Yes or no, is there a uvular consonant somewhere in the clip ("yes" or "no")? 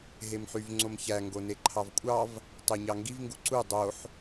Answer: no